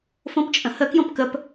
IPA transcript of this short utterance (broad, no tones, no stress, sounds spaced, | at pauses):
f õ p t͡ʃʼ ə̃ h ə k j õ p k ə p